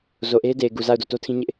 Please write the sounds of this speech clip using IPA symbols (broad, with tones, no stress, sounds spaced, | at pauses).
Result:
z o˨ ʔ e˦ ɪ̯ d e˨ ɪ̯ ɡ u˨ z a˦˨ ʊ̯ d o˦˨ t o˦ tʰ ĩ˦ ɲ ɪ˦ ʔ